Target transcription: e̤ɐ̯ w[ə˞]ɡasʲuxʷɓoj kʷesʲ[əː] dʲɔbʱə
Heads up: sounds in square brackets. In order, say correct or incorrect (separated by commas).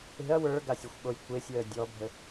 correct, correct